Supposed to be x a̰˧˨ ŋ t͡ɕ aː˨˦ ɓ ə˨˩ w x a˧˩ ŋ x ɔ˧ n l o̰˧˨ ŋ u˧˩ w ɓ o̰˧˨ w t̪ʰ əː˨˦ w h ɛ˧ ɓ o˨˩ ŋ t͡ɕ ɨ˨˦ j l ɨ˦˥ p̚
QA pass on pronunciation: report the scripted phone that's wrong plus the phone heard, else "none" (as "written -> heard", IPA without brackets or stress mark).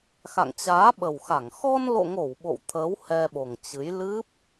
u˧˩ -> o˧˩